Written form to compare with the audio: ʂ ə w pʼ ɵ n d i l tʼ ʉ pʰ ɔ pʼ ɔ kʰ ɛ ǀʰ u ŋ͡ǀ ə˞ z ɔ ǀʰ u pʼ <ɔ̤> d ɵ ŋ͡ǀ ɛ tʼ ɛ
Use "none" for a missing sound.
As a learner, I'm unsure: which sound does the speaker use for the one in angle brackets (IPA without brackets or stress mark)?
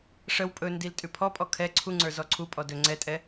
ɔ